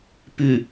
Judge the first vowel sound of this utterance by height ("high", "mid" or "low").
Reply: high